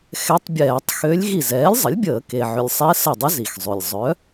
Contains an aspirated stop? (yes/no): no